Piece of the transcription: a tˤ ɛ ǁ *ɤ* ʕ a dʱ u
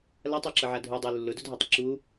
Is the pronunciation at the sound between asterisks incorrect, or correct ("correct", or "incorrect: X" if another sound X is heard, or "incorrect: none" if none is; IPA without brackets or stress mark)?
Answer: correct